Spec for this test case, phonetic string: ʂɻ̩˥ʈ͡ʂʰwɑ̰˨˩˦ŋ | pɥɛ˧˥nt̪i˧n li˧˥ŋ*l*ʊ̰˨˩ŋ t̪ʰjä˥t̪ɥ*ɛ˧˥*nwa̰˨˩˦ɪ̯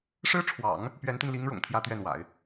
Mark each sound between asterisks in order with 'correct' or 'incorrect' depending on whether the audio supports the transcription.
incorrect, incorrect

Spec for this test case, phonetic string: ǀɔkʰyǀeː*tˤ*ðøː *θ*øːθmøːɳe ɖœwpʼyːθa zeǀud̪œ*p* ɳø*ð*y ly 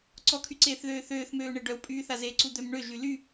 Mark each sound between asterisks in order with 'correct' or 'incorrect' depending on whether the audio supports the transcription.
incorrect, correct, incorrect, incorrect

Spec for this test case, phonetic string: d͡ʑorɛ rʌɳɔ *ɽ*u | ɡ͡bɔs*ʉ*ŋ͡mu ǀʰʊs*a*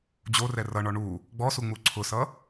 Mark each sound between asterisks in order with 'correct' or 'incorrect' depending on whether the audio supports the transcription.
incorrect, incorrect, incorrect

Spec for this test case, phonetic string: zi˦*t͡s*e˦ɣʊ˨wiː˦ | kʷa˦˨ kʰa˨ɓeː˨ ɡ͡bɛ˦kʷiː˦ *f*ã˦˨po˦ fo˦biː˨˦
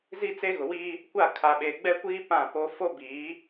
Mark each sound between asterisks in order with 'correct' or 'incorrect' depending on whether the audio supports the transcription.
correct, incorrect

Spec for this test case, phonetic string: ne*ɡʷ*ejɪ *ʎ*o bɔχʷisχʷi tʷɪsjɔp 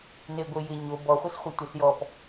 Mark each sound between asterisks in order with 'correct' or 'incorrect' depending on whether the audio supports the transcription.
correct, incorrect

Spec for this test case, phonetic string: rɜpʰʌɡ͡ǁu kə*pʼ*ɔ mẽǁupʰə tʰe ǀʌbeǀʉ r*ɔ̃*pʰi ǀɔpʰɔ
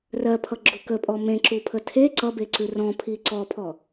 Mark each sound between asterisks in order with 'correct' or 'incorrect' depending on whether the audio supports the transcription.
correct, correct

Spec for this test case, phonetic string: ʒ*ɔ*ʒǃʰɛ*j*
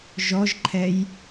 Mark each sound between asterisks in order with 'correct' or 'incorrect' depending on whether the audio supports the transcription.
correct, correct

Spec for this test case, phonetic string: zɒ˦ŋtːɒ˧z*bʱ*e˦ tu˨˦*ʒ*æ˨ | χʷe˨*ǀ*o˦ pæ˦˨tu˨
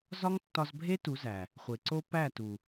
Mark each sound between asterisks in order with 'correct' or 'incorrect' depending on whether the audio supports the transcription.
correct, incorrect, correct

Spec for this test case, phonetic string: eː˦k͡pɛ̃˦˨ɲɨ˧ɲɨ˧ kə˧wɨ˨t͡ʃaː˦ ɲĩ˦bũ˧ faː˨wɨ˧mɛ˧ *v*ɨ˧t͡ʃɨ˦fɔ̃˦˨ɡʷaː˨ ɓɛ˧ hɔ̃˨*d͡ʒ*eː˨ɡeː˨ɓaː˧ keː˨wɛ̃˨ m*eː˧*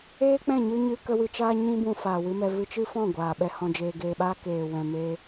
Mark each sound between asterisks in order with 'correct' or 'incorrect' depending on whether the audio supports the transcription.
correct, correct, correct

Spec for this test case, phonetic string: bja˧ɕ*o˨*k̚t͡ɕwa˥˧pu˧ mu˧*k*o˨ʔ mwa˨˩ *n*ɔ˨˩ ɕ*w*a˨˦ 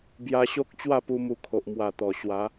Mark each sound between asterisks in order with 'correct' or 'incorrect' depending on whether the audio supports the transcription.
incorrect, incorrect, incorrect, correct

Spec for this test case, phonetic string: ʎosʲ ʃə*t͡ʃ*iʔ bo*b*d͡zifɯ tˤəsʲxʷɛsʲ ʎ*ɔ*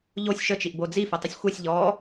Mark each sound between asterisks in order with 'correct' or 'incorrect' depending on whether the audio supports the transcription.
correct, incorrect, correct

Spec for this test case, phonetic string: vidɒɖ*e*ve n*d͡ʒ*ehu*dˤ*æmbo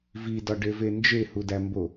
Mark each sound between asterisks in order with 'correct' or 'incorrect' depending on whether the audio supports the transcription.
correct, correct, incorrect

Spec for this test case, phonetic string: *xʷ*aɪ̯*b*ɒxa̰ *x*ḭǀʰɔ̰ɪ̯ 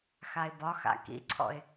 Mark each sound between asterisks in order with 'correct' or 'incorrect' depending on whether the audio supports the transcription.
incorrect, correct, incorrect

